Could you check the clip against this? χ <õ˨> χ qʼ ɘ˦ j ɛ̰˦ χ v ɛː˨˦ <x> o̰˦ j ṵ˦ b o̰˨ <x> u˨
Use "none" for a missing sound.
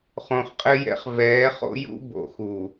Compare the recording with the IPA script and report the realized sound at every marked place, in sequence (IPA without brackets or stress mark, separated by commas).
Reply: õ˨, χ, x